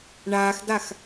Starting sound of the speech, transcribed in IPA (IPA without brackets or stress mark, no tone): ɳ